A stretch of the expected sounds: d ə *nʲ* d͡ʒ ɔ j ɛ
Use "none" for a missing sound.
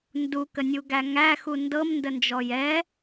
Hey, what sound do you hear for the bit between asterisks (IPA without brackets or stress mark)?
n